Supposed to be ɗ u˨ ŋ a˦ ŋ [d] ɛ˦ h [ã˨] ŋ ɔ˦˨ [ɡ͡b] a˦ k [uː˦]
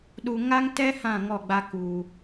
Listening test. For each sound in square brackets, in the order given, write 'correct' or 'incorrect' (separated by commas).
incorrect, incorrect, correct, correct